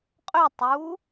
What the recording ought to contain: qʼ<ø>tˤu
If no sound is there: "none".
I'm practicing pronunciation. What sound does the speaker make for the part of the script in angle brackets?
ø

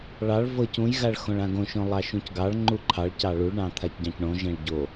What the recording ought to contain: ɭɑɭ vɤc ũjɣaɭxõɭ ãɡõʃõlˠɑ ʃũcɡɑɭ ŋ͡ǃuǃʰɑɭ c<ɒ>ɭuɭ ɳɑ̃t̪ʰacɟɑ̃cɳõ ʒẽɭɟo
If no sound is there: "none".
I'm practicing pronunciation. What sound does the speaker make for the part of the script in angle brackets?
ɑ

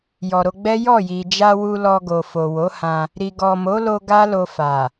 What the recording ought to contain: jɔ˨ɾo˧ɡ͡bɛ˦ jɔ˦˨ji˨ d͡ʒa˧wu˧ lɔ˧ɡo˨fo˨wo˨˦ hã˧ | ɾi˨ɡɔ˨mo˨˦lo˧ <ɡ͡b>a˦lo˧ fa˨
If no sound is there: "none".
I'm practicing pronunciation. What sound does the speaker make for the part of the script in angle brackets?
ɡ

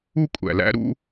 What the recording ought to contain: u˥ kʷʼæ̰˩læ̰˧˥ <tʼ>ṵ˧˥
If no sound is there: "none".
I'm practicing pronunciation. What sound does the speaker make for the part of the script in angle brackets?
ɾ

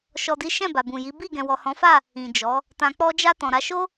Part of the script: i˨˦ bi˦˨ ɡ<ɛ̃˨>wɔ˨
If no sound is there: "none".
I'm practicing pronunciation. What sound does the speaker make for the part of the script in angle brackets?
ɛ̃˨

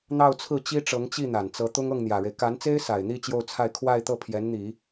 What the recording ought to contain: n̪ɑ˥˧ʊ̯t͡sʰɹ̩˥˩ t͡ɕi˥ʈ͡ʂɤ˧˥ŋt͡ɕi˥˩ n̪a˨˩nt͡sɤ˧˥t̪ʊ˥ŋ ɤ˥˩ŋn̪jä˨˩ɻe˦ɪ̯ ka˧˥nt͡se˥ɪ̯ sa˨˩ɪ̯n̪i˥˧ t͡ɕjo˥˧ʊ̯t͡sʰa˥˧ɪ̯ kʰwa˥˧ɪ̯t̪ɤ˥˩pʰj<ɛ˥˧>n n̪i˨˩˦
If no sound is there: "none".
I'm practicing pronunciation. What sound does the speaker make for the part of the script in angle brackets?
ɛ˧˥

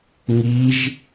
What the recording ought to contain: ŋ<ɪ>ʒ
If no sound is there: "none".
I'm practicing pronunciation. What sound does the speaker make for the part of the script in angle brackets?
i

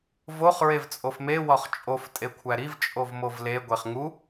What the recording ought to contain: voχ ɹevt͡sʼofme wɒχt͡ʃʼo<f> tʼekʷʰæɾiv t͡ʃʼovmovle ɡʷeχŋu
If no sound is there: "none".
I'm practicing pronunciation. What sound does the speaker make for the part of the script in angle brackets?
f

